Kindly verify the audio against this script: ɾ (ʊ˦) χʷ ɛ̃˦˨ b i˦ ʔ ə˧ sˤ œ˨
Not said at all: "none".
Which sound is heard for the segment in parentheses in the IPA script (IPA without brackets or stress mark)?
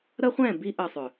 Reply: ə˦